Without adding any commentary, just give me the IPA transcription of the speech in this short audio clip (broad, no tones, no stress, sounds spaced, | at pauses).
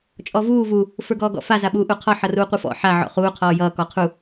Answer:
t͡ʃʼ ɔ v uː v u | f ə˞ ɡ ɔː ɡ ɔ̰ f a z a ɓ uː ʔ u qʰ ɔ ħ ʌ r uː qʷ ɯ f ɔ̰ ħ a ʕ ɔ̰ χ uː qʰ ɔː j ʌː k ɔ qʰ u